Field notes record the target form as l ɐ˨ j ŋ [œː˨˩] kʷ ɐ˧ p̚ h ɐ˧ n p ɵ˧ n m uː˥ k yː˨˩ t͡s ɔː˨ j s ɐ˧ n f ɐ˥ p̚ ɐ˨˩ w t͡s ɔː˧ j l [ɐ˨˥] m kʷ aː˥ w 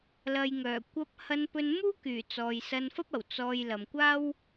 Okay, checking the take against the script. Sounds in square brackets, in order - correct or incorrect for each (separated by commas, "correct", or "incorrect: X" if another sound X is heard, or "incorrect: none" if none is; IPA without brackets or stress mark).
correct, incorrect: ɐ˨